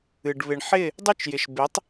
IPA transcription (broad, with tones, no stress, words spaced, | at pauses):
ɨ˨ɖ βɪ˨ɳħɪ˦˨ | dˤy˦t͡ʃjɪ˨ʃ bɪ˨˦tˤ